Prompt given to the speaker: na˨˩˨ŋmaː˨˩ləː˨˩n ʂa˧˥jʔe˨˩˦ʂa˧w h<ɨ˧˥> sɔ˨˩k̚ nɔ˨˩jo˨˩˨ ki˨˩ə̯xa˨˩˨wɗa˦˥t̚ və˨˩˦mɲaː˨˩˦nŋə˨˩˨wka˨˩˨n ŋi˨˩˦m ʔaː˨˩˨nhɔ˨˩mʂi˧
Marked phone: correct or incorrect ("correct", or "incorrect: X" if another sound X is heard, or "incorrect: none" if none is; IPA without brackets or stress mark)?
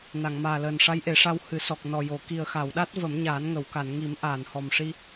incorrect: ɨ˨˩˦